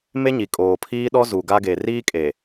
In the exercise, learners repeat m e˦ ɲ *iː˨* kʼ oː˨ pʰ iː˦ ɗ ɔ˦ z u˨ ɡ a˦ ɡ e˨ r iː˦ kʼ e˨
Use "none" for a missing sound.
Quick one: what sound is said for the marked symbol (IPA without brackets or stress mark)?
i˨